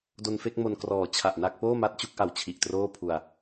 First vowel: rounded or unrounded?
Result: rounded